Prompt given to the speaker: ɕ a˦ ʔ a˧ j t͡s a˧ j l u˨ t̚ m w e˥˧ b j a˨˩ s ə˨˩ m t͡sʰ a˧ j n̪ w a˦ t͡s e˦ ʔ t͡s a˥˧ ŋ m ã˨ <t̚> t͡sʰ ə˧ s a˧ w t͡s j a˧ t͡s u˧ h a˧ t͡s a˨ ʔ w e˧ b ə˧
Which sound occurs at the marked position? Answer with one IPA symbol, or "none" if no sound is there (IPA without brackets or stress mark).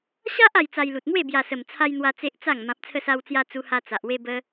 p̚